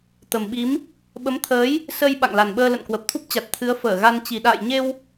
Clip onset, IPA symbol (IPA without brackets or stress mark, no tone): t̪